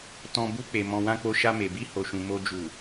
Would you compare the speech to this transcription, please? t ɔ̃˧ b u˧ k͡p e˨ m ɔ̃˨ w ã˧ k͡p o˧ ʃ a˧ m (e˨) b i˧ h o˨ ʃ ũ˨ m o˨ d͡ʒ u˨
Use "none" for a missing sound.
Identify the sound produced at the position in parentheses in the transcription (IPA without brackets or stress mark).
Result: e˨